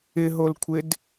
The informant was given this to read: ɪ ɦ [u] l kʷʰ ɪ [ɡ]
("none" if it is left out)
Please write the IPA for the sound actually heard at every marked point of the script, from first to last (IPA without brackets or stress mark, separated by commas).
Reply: o, d